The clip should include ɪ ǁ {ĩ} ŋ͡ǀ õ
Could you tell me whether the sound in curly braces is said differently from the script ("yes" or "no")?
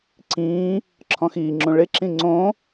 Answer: no